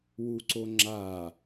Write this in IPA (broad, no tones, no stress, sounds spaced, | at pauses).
w u ǀ o ŋ͡ǁ a